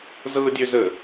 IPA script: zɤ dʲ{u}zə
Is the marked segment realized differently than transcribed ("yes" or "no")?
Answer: yes